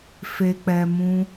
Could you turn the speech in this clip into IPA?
fe˨k͡pɛ˨ mũ˧

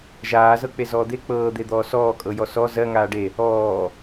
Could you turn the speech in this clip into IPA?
ʒaːzɤ k͡pezɔːd̪e k͡pɤːd̪ed̪ɔː sɔː kʼɤjɔsɔ zɜ ŋaːɖe | ɔː

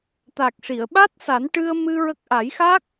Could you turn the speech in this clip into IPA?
t̪a˨˩k̚ʂi˨˩˨ə̯ɓa˦˥t̚ sa˨˩˦nʈɨ˧ə̯mɨ˧ ɹə˦˥k̚ ʔa˨˩˦jxa˦˥k̚

